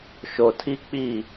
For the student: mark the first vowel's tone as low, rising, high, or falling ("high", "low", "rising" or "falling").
low